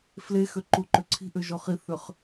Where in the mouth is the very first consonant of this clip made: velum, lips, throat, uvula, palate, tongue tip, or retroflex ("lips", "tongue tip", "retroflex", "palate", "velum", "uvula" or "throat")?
lips